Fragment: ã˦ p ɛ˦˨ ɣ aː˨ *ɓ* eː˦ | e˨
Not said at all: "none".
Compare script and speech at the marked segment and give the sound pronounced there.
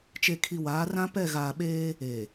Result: ɓ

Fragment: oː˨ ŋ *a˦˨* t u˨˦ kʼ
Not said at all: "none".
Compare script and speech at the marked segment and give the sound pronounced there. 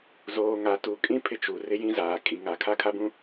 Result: a˨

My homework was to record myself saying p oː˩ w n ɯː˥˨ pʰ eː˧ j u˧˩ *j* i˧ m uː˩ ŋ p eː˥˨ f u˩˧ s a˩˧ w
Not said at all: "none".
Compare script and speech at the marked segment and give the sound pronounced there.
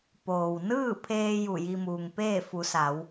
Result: j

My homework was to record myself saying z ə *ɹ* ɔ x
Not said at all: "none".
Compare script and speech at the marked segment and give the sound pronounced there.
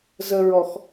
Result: ɹ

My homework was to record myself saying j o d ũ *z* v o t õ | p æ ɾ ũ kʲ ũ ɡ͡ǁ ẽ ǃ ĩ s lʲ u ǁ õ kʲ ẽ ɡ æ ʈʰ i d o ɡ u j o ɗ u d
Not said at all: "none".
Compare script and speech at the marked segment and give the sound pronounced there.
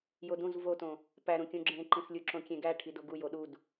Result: z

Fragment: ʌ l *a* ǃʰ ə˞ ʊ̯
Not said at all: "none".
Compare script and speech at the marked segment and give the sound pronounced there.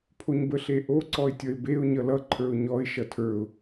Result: ʌ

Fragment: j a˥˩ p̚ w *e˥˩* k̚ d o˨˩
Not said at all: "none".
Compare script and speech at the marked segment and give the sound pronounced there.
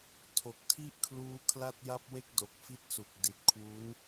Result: e˥˩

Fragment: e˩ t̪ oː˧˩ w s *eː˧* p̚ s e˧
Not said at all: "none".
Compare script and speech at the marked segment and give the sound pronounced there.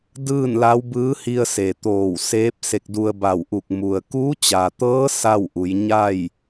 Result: eː˧˥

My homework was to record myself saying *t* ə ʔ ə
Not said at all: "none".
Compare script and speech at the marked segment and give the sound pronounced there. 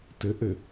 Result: t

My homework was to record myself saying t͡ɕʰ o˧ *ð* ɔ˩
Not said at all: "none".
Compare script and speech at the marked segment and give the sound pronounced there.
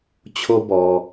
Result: b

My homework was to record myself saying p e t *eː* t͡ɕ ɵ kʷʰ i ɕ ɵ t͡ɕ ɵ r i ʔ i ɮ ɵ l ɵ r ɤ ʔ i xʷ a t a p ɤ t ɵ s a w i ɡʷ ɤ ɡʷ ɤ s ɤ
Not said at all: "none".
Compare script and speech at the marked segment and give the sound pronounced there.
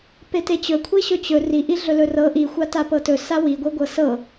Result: e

